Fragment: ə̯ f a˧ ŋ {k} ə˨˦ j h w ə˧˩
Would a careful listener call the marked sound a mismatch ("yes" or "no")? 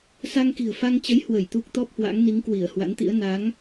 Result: yes